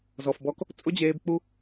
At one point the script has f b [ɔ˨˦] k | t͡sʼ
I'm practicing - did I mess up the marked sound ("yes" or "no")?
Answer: yes